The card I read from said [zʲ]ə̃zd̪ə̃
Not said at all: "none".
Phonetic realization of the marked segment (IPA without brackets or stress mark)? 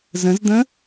z